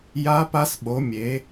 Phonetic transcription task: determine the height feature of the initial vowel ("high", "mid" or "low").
low